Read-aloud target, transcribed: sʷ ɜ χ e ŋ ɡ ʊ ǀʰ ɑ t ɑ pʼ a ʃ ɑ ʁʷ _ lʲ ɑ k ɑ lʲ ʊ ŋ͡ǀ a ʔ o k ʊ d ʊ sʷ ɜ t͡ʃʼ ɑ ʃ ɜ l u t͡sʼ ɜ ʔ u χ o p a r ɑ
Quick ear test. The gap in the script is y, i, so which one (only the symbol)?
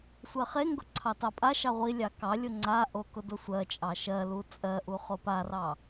i